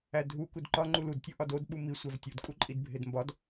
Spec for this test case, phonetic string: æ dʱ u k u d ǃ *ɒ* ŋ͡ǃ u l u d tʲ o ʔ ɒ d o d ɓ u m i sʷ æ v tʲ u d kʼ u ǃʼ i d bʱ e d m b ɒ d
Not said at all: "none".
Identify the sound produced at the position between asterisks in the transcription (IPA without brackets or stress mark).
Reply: ɒ